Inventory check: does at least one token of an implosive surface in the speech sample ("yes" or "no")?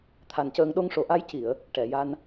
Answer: yes